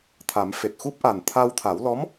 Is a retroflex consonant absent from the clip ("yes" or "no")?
yes